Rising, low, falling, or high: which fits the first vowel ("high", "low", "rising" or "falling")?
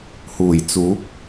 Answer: low